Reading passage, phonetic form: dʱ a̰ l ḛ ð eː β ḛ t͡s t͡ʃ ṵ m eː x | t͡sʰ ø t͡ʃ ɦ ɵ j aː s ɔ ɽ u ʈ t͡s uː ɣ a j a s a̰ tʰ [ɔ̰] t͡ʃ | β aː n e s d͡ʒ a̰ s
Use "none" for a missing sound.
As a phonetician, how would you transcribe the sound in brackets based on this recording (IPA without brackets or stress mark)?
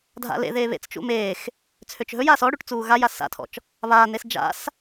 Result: ɔ̰